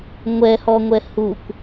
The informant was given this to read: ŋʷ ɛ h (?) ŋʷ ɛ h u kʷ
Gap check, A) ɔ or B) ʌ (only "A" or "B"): A